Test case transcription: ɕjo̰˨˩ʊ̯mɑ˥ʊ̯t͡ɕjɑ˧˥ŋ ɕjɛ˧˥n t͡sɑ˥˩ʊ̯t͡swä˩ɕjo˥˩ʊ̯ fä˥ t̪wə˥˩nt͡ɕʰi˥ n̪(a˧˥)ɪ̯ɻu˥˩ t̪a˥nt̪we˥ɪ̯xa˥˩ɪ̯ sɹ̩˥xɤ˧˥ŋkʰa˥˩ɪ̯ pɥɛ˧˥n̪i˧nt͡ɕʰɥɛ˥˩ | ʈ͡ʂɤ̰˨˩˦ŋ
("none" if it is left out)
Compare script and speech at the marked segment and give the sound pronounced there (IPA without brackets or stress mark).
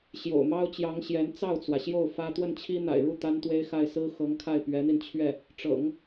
a̰˨˩